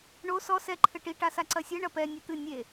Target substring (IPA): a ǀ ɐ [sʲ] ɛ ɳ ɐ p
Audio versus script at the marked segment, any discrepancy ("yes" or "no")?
no